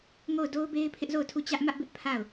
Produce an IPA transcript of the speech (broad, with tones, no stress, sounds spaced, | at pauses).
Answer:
ŋ o˦˨ ʊ̯ d o˦ ʊ̯ b e˦ ɪ̯ pʰ ɪ˦ ʔ z o˦˨ ʊ̯ tʰ u˦˨ t͡ɕ ä˦ ʔ m ä˦ ʔ b ɪ˦ ʔ pʰ a˦˨ ʊ̯